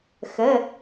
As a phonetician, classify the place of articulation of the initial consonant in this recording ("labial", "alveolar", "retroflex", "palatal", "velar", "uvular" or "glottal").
velar